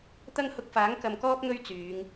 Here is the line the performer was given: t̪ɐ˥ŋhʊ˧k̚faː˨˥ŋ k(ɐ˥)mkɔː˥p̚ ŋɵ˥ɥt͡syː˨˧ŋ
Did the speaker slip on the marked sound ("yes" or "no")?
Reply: yes